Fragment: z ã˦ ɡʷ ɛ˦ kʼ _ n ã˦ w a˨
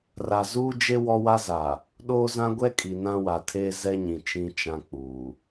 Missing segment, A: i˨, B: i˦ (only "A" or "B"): A